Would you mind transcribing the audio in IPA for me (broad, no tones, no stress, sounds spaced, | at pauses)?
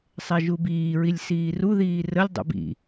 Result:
sˤ ɛ ʒ u b iː ɹ i lʲ s iː r u ð iː r ə lʲ dˤ ṵ b ḭ